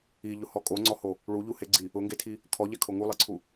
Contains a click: yes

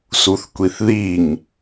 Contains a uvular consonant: no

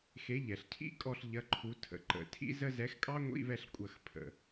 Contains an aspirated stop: yes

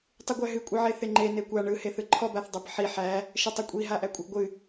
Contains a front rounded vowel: no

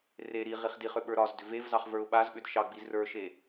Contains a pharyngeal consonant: no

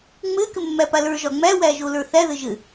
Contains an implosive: no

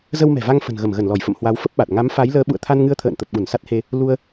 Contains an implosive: yes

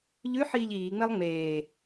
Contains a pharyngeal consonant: yes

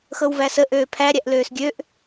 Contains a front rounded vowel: yes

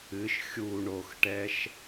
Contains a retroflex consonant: yes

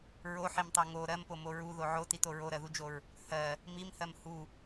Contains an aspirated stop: no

